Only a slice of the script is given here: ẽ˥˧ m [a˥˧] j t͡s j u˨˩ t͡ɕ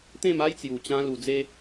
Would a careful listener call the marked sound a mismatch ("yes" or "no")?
yes